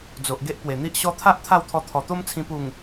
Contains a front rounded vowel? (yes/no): no